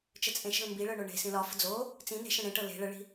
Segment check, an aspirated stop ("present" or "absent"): absent